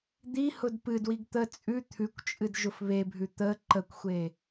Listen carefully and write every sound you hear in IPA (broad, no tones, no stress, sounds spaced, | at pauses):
d̪ i h ʊ d p ɨ d w i ɡ t̪ ə t͡sʼ ʉ t̪ʰ ʉ kʷ t͡ʃʼ ɨ d ʒ ʊ f β e bʱ ʉ t̪ ə ǃ ə kʷ xʷ e